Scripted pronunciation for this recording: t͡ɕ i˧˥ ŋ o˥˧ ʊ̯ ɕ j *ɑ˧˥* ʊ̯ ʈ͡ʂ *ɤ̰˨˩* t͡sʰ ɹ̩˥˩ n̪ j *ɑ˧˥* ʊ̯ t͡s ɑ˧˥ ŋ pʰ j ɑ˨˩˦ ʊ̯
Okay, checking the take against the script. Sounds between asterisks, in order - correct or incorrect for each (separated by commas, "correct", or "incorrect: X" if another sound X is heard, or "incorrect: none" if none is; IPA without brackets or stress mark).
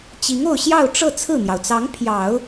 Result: incorrect: ɑ˥˧, incorrect: ɤ˥˧, incorrect: ɑ˩